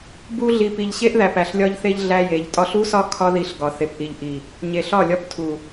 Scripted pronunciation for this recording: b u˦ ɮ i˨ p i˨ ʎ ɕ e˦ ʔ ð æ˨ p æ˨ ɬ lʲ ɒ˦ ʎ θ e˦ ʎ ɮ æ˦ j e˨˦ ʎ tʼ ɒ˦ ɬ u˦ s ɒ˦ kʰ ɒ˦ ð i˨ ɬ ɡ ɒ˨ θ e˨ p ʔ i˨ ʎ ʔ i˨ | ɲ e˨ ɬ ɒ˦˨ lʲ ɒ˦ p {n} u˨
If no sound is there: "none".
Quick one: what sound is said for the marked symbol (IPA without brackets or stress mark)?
tʰ